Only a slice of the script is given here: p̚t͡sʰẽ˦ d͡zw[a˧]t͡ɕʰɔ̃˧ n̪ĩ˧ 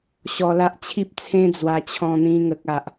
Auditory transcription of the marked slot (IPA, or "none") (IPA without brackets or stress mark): a˧